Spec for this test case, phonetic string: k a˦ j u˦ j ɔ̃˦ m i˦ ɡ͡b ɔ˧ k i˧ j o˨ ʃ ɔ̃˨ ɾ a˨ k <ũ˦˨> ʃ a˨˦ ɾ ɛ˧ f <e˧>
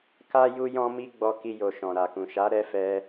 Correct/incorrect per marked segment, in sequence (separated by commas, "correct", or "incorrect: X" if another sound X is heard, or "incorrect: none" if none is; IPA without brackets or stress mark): incorrect: ũ˨, incorrect: ɛ˧